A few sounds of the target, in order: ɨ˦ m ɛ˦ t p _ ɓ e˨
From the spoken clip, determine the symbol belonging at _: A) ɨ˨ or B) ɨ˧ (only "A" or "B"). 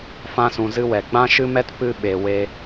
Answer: B